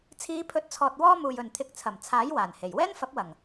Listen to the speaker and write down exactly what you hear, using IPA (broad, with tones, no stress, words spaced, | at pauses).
t͡sʰiː˨˧pʰɵ˨˥t̚t͡sʰɔː˨t̚ wɔː˥muː˨jɵ˨nt̪ʰɪ˧k̚ t͡sʰɐ˨˩mt͡sʰaː˨˥j waː˨˩nhe˨˩j wɛː˥nfɐ˨˥p̚ wɐ˨˩ŋ